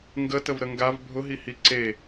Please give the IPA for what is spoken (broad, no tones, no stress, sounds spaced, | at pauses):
ŋ ɡ ə t ə v ɾ ə ŋ ɡ a v bʱ ʊ ɦ i h i ǀ e